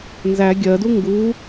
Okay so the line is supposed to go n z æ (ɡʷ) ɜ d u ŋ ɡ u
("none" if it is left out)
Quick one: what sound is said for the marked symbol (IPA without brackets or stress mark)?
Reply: ɡʲ